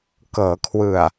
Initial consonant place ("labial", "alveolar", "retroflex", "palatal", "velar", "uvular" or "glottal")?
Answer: velar